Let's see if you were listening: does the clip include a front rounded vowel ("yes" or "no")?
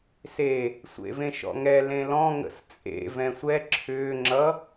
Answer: yes